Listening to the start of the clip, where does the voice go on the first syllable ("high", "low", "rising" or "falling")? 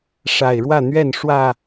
low